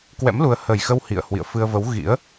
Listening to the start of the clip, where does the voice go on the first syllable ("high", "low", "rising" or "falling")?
rising